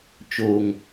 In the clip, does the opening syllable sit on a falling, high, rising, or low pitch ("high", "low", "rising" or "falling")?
low